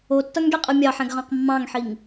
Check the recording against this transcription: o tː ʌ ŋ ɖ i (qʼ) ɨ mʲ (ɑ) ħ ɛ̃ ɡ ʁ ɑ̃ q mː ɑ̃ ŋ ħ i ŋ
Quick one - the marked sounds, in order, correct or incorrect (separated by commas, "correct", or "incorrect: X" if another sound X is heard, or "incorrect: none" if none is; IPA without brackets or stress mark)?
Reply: correct, correct